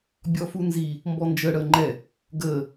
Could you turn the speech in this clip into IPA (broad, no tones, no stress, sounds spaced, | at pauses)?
bʲ ɔ f u n z i | m b ɔ n d͡ʒ ə ɽ əː ŋ͡ǃ ɛ | ɡ əː